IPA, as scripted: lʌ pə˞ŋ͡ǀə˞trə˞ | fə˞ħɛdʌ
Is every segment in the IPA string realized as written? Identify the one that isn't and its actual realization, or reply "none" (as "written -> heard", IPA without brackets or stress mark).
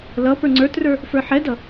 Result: none